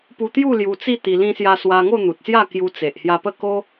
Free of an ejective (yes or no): yes